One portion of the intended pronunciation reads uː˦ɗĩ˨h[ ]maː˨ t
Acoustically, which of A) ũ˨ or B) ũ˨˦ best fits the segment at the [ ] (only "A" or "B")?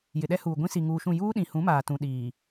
B